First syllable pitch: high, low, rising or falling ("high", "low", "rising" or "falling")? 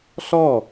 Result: falling